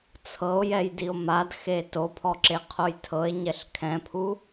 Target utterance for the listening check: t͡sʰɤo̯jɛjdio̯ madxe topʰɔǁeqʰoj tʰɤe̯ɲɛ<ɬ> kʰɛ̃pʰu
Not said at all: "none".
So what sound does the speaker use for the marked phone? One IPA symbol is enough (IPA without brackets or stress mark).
ɬ